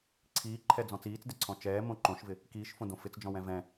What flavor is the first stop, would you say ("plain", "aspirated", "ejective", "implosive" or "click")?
click